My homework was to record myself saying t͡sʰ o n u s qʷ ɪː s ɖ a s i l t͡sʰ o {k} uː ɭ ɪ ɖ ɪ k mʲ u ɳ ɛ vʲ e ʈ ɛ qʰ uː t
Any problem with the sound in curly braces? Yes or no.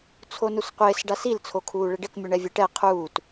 yes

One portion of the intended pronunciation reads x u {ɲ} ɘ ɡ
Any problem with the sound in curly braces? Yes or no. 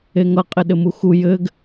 yes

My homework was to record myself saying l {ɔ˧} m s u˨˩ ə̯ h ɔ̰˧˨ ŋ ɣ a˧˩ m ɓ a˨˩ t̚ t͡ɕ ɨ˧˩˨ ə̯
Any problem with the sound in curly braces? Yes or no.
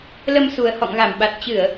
yes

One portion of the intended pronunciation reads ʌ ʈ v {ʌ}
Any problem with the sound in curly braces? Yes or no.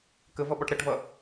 no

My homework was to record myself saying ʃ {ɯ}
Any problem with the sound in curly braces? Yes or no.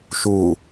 yes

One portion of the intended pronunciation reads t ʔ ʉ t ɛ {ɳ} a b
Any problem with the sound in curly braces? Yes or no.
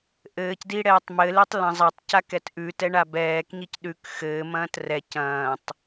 no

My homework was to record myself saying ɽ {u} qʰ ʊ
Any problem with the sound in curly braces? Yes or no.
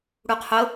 no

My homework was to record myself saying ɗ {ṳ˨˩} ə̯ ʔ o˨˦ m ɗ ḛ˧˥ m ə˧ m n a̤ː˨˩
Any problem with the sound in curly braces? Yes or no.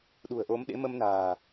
no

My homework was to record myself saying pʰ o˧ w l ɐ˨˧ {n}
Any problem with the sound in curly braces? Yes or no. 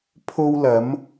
yes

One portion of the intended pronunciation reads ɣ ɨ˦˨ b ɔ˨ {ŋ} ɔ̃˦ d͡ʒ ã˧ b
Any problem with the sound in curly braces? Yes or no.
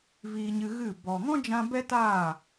no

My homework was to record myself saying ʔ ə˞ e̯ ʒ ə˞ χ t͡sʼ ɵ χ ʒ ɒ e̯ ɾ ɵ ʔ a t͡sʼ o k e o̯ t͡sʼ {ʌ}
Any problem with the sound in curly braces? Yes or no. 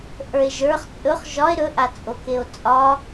yes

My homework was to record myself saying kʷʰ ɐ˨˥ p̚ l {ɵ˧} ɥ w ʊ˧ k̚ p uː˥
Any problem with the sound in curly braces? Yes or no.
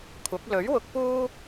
yes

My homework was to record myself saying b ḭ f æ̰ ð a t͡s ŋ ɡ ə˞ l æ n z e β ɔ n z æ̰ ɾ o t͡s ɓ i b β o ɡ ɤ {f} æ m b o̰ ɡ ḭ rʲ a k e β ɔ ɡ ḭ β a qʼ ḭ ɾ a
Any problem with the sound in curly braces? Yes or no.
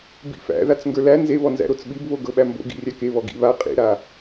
yes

